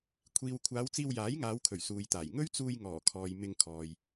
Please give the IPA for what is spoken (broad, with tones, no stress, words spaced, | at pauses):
kʷʰiː˨wkʷʰaː˨˧w t͡siː˧wjaː˨˥jŋaː˨˧wkʰɵ˨˩ɥ suː˨jt̪aː˨˩j ŋɵ˥ɥt͡suː˧j ŋɔː˨˩kʰɔː˨j mɪ˧ŋkʰɔː˨j